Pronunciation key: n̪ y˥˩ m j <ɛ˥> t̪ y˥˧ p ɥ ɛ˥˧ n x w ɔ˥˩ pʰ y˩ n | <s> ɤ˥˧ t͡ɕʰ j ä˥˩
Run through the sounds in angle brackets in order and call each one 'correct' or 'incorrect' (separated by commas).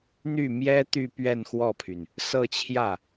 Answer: correct, correct